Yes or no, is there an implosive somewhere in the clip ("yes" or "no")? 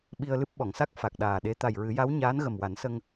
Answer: yes